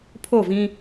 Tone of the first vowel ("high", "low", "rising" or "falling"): falling